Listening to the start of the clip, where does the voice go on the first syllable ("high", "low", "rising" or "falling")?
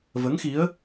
rising